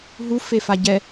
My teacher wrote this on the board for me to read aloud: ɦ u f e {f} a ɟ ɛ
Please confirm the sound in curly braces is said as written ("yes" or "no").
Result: yes